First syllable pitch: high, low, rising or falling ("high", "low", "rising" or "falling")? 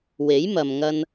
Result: rising